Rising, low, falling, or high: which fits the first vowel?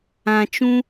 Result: low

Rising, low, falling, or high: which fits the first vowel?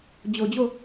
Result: low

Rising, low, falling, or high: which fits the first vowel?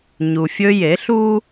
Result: low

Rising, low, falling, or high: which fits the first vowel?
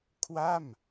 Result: falling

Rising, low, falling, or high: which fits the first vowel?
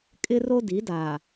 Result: high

